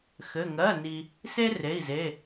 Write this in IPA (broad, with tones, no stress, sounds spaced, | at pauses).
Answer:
x ɘ˧˥˧ ŋ ɜ˧˥˧ n i˧ | s e˥ r e˧˥˧ i̯ z e˧˥˧